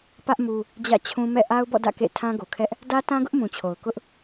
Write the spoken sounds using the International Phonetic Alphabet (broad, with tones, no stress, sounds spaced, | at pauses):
p ä˦ ʔ m u˦ | d͡ʑ ä̰˦˨ t͡ɕʰ ũ˦ m ɛ̰˦˨ ʔ a˦ ʊ̯ b ɔ̰˦˨ d ä̰˦˨ k ḛ˦˨ tʰ ã˦ ɡ o˨ kʰ ɛ˦ ʔ | d ä˦ t ã˦ ɡ ʊ˦ ʔ m ũ˨ t͡ɕʰ o˨ ʊ̯ k ʊ˦ ʔ